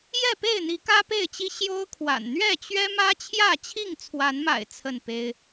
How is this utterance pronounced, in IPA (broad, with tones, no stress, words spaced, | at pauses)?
jɛ˥˨pe˥˨ɪ̯n̪i˨˦ kä˦pe˥˨ɪ̯t͡ɕi˦ ɕjo˦ʊ̯kʰwa̰˨˩n n̪ɥɛ˥˨t͡ɕɥɛ˦ mä˦ t͡ɕʰjä˥˨t͡ɕʰi˥˨ŋt͡sʰwa˨˦nma̰˨˩ɪ̯ t͡sʰə˥˨npe˦ɪ̯